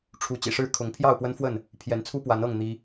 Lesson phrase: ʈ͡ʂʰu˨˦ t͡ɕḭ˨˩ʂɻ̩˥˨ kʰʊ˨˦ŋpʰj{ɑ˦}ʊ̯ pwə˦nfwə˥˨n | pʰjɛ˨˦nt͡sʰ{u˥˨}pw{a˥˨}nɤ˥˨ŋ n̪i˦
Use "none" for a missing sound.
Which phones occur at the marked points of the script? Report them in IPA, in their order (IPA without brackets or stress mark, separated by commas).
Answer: ɑ˥˨, u˦, a˨˦